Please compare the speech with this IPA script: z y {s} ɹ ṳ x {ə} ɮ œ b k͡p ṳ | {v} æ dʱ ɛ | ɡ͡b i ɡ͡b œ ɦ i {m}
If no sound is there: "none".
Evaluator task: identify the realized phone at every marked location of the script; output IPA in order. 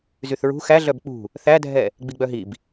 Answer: θ, æ, θ, b

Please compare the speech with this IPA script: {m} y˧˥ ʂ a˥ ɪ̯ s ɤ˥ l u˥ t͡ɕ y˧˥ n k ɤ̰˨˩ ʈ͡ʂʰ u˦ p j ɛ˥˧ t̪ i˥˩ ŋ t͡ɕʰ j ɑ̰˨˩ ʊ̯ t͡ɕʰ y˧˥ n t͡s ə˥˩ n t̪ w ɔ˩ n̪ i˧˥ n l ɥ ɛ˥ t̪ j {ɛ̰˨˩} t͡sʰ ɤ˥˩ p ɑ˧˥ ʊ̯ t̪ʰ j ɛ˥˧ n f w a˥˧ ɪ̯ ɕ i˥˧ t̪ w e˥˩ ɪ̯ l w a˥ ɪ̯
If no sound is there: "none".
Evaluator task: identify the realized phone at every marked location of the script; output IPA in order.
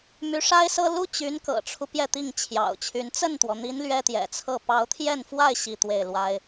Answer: m, ɛ̰˨˩

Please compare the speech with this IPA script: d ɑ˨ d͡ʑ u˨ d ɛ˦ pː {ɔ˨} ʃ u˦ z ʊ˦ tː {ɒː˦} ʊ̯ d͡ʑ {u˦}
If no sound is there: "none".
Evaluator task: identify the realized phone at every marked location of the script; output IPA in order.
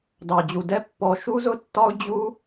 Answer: ɔ˨, ɒ˦, u˦

